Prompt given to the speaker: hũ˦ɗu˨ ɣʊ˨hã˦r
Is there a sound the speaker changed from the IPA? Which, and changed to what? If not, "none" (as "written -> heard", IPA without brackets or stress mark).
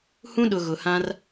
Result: u˨ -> ʊ˨